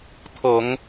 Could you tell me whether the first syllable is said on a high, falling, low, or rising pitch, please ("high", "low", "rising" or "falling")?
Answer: low